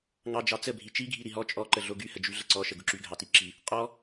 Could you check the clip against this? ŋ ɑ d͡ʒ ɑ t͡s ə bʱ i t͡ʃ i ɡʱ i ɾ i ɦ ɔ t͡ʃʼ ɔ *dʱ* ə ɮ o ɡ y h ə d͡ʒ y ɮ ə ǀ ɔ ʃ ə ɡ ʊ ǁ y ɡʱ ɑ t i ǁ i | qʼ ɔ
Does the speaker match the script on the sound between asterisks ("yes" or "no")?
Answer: no